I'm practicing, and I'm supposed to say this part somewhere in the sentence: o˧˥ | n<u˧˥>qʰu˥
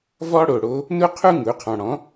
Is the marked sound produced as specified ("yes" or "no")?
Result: no